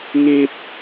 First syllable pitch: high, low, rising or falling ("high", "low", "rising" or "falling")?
high